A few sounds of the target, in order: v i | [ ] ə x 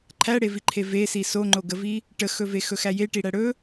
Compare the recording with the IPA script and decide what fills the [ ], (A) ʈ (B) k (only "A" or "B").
A